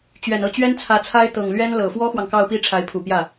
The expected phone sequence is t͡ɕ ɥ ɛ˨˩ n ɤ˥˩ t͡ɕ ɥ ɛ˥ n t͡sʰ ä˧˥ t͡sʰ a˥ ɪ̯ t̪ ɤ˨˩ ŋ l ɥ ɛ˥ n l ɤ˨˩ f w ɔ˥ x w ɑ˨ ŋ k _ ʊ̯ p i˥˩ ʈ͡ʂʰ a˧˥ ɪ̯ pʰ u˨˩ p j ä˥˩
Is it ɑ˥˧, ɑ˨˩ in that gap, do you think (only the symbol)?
ɑ˥˧